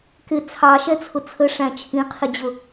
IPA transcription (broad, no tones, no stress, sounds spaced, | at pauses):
k ɪ t͡sʰ ɑ ʃ ɛ t͡sʰ ʊ t͡sʰ ə ʂ æ̃ t͡ʃʰ ĩ qʰ ɪ d͡ʑ ʊ